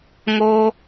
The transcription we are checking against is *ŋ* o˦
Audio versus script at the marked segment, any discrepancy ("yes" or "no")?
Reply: no